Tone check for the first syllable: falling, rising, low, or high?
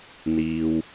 low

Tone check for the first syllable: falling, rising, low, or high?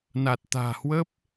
low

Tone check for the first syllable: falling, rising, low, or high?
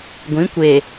rising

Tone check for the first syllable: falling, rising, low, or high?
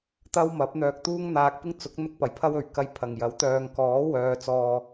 high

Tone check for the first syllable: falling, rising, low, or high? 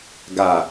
low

